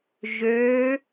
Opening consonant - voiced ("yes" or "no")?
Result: yes